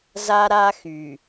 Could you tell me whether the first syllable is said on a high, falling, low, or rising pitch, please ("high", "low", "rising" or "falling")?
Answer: high